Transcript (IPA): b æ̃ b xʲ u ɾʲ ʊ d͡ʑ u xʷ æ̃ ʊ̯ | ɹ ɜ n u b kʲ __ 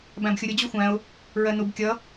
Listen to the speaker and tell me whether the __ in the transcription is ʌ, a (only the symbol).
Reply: ʌ